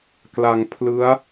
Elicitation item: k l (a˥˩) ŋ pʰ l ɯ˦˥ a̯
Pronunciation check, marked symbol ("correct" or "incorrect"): incorrect